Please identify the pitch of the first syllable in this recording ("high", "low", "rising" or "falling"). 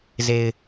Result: low